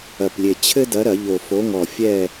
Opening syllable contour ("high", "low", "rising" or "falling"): low